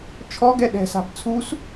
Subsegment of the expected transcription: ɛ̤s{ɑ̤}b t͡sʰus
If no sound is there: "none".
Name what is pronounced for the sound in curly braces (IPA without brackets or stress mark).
a̤